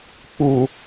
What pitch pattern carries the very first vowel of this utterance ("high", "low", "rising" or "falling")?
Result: low